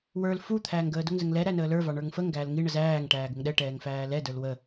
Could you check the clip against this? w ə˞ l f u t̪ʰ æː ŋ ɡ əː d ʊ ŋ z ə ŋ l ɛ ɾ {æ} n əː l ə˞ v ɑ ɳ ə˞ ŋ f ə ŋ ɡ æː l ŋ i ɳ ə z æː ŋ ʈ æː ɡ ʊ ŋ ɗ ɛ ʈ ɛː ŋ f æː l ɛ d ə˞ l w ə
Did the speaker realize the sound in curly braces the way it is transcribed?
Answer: yes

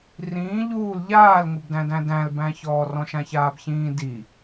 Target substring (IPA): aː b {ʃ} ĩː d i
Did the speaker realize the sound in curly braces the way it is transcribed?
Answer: no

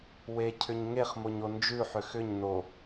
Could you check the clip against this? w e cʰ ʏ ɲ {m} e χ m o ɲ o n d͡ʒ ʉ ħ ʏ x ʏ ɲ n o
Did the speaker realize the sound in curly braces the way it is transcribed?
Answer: no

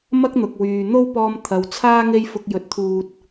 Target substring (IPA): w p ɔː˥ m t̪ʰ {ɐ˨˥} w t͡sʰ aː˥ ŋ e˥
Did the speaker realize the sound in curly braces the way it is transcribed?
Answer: no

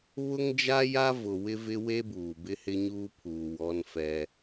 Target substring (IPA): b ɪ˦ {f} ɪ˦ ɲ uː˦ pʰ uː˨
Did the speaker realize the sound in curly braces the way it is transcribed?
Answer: no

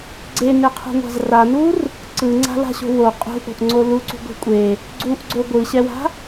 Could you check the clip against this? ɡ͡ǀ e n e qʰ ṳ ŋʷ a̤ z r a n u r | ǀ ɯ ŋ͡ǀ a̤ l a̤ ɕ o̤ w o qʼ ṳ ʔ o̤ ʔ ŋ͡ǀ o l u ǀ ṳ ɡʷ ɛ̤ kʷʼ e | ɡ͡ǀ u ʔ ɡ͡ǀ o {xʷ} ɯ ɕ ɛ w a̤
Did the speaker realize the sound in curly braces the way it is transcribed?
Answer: no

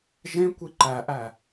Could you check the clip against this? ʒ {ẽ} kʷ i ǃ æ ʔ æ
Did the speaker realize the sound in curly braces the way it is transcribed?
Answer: yes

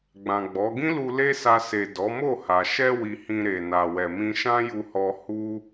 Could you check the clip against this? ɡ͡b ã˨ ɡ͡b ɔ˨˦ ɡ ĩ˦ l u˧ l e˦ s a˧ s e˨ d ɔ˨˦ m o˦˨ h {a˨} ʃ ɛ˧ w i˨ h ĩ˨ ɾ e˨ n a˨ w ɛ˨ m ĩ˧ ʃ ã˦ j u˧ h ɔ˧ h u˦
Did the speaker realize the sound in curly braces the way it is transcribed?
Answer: yes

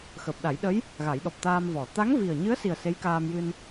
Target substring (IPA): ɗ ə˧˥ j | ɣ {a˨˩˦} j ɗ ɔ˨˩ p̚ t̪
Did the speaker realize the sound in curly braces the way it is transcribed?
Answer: yes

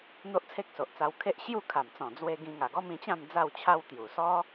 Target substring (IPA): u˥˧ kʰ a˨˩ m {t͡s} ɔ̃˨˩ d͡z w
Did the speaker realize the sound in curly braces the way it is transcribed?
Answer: yes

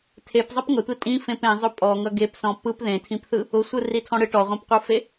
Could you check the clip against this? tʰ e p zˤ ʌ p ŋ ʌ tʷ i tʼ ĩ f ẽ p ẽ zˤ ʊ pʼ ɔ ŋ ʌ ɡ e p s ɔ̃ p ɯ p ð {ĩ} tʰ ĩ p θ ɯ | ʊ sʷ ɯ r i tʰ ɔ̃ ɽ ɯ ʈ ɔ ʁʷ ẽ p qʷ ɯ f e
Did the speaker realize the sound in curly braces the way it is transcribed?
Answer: no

